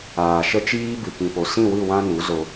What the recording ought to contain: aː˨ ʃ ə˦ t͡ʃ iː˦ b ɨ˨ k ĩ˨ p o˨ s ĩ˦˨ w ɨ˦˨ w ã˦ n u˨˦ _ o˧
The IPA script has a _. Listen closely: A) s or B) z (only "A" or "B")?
B